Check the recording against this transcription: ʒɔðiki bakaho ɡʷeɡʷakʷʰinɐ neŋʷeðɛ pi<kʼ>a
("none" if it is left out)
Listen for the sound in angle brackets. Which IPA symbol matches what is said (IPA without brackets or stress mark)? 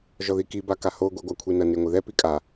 kʼ